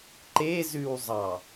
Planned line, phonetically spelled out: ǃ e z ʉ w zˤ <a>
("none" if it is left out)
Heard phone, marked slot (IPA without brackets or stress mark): ɑ